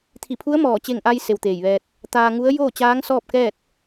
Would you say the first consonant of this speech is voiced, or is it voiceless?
voiceless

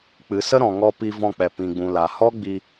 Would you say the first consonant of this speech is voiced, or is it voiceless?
voiceless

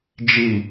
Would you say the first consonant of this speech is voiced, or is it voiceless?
voiced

